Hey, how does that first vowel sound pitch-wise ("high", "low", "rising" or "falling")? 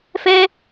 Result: high